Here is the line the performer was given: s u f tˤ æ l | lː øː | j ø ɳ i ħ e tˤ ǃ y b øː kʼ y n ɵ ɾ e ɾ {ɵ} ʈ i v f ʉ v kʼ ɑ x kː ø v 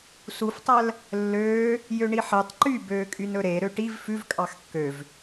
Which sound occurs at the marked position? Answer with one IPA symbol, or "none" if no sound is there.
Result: ø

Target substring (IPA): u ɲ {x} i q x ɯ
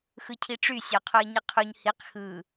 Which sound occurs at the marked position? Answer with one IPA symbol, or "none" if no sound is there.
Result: h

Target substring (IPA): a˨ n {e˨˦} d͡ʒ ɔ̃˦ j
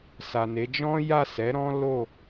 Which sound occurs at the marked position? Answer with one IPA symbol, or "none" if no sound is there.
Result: e˨˦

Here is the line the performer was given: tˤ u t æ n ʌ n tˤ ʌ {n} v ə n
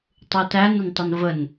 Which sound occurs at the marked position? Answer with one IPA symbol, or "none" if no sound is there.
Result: n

